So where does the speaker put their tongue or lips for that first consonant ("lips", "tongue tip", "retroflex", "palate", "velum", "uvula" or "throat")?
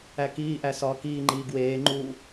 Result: velum